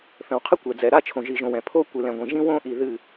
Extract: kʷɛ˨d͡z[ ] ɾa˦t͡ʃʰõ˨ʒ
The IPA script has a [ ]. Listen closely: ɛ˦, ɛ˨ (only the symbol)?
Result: ɛ˨